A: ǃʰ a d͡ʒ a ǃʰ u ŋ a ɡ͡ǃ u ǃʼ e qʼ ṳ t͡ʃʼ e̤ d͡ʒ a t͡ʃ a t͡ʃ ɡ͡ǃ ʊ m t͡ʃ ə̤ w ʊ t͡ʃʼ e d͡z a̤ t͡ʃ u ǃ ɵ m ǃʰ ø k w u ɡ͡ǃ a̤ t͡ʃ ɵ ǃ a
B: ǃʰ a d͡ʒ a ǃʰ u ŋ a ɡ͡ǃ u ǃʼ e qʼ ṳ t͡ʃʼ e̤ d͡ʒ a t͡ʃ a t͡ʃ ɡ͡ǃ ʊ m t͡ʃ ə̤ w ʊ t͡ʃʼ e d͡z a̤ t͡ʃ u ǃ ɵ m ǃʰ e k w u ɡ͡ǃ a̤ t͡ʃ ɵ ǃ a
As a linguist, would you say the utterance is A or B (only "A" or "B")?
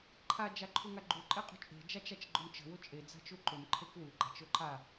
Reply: B